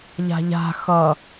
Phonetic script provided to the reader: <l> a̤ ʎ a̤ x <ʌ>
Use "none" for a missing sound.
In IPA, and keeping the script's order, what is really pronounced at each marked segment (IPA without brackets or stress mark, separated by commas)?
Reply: ʎ, ʌ